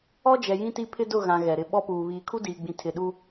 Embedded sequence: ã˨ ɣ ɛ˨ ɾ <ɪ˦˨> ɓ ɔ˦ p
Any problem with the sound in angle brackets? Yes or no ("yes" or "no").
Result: no